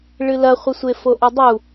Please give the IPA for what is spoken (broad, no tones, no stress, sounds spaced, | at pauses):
ɭ ɨ l ɐ χʷ ɘ sʷ e f o ʔ e dˤ u